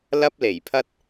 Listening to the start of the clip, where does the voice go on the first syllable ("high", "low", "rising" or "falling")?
high